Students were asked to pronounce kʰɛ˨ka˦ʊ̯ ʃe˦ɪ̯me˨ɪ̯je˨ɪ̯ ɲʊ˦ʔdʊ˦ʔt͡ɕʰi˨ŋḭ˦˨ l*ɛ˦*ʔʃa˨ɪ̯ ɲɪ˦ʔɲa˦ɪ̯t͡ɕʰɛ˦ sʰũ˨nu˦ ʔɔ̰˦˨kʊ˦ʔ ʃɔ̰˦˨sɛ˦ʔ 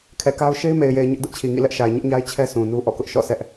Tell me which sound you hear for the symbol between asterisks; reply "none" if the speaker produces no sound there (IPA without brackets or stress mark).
ɛ˦